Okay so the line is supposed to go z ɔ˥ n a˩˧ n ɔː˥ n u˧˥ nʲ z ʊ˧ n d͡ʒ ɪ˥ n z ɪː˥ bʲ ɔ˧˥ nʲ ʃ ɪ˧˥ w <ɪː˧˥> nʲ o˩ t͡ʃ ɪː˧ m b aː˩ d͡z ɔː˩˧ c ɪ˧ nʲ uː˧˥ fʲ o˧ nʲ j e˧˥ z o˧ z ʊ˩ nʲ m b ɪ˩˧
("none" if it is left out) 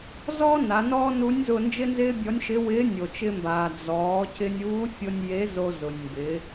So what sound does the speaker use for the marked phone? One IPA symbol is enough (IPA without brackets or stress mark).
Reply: ɪː˧˥